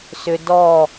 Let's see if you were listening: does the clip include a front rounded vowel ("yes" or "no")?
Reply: yes